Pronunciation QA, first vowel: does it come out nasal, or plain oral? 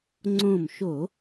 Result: nasal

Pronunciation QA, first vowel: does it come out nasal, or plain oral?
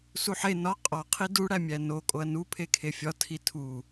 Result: oral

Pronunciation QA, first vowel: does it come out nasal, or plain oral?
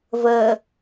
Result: oral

